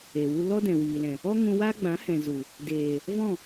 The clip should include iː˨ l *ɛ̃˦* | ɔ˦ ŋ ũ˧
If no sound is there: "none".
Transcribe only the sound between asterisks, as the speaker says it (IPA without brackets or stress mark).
ɛ̃˨